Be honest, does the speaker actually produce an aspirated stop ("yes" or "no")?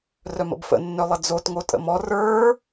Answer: no